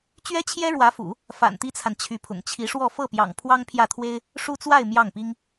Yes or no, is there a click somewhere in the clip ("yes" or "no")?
no